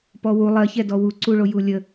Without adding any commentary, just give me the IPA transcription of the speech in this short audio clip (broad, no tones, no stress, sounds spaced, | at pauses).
p ɔ w u lˠ ɜ ç ɛ d ɔ w u ǀ u ɭ o j u lʲ ə